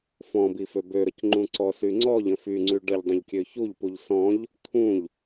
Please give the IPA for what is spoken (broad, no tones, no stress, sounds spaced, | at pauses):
f ɔ̃ b i f ø b ø ɾ ə c ŋ͡ǃ ũ ǀ ɔ s y ŋ͡ǀ ɔ ʎ ə̃ f y ŋ͡ǀ y ɖ ə ʎ dˤ ə̃ ʎ kʲ ø ç u ʎ p u ʎ s ɔ̃ ʎ | t̪ʰ ũ ʎ